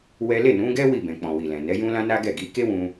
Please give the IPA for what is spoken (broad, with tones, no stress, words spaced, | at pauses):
wɛ˦ le˦˨nũ˨˦ɡɛ˦ wi˦˨bɛ̃˨k͡pɔ̃˨ wi˨lɛ̃˨ nɛ˨˦jũ˦lã˦ na˦ɡɛ˦˨ɡi˨˦ ke˦wũ˧